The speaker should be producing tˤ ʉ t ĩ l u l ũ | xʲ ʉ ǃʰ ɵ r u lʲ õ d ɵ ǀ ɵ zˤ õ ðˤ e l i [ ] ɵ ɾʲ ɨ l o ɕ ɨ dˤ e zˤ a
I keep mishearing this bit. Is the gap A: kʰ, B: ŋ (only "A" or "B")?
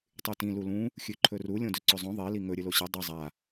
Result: B